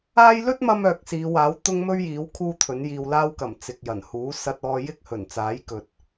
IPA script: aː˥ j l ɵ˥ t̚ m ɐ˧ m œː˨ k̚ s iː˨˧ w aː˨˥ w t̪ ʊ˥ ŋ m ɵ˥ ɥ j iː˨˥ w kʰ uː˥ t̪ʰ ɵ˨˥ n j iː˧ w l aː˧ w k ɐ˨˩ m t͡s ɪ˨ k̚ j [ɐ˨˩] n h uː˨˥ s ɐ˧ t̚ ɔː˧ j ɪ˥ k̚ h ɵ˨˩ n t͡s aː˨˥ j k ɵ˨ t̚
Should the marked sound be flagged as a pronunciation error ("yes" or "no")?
no